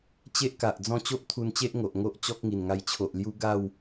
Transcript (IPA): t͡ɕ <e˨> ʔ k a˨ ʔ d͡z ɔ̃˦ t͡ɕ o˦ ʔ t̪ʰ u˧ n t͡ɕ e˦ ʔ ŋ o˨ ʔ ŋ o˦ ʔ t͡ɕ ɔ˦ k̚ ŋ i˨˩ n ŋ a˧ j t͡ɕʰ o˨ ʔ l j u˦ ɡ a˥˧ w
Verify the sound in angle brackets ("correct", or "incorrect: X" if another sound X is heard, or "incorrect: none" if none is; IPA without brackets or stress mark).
incorrect: e˦